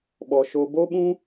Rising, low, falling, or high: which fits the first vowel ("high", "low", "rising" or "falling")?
low